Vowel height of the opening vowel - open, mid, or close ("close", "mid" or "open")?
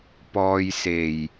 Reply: mid